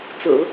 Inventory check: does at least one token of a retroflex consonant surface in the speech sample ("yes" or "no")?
no